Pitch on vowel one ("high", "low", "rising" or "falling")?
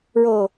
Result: low